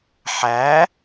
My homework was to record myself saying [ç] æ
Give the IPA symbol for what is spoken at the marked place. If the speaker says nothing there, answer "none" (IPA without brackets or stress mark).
ħ